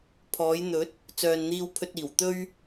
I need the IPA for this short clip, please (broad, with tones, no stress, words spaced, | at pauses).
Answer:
pʰɔː˨˧jn̪ɵ˨˥t̚ | t͡sœː˨nn̪iː˧wpʰɵ˧t̚iː˨˩w t̪ɵ˧ɥ